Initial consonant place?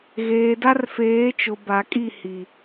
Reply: velar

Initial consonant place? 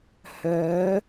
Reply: glottal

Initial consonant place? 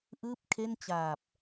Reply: glottal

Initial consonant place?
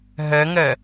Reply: glottal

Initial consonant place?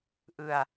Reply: glottal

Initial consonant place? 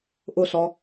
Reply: glottal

